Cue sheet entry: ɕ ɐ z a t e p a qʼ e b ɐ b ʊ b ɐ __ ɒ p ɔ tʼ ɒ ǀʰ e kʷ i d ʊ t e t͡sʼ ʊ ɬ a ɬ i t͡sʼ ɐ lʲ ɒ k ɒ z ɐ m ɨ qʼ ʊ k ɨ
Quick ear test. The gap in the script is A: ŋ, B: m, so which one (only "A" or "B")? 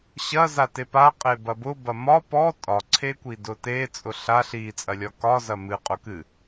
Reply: B